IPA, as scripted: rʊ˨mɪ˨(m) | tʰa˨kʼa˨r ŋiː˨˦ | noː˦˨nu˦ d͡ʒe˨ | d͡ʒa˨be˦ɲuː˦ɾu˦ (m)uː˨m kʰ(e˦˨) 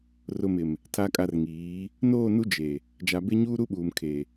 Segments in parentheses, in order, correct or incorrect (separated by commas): correct, incorrect, incorrect